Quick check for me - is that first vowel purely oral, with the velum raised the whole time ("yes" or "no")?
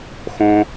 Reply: no